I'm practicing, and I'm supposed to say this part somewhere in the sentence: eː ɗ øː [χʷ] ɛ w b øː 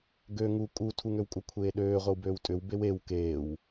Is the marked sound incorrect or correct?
incorrect